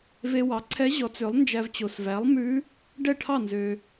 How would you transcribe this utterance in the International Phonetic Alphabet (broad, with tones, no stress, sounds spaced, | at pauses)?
v e˧ w ɑ˩˥ ǀʰ ɛ˧˥ ʑ ɔ˩˥ t͡s ø˩˥ lˠ n d͡ʒ æ˧ v t͡ɕ o˩ s v æ˩˥ lˠ m ʉ˧˥ | ɖ ɛ˥˩ ʈʰ ɑ˥˩ n z ø˩